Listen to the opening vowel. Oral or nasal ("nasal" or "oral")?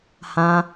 nasal